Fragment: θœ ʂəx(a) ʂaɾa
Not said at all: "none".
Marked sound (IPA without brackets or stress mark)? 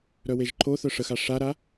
a